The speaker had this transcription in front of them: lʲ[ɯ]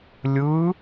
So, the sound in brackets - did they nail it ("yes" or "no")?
yes